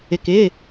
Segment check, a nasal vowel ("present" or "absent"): absent